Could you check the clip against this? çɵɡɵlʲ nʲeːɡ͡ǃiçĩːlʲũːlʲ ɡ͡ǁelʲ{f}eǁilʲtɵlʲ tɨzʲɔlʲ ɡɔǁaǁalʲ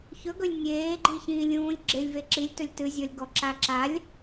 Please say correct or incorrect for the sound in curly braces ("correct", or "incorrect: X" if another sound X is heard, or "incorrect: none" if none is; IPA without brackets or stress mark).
incorrect: v